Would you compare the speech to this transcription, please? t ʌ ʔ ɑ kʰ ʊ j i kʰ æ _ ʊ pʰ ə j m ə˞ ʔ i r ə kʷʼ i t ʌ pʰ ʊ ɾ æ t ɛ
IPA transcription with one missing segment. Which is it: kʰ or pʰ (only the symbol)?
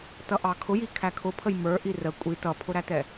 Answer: kʰ